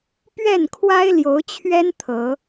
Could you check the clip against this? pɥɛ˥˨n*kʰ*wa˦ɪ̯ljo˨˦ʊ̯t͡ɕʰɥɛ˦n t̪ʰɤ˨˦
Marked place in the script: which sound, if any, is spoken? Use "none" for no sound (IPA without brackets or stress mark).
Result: kʰ